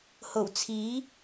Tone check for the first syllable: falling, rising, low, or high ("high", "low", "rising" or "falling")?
low